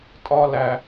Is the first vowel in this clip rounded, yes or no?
yes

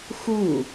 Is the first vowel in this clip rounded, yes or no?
yes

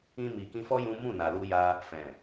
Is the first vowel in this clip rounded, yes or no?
no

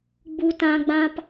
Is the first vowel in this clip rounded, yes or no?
yes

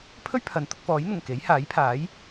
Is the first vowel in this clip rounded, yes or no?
yes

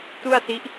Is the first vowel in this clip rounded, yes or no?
yes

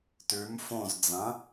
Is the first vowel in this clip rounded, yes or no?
yes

